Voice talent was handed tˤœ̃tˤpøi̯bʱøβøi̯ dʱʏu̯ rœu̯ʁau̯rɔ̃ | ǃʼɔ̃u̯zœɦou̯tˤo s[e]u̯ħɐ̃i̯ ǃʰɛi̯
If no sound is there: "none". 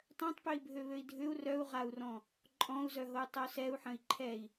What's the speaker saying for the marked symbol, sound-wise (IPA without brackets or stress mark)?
ɛ